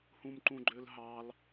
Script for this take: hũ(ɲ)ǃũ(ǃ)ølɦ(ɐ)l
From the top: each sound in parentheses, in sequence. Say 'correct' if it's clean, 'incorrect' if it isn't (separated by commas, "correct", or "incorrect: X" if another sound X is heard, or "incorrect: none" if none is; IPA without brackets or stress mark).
incorrect: m, incorrect: ɡ͡ǃ, incorrect: ɑ